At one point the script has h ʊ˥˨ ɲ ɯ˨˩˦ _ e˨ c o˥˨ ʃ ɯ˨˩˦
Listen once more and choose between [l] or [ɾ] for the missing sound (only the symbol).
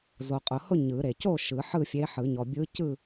ɾ